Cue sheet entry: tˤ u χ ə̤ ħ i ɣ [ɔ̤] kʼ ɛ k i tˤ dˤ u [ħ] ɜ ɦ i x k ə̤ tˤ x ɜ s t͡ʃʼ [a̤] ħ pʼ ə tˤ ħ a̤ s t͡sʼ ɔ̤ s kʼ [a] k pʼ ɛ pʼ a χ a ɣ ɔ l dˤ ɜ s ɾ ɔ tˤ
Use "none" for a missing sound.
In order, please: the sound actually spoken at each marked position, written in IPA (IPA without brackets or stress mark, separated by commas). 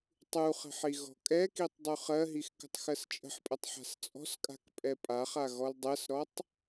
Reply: ɔ̤, χ, ə̤, a̤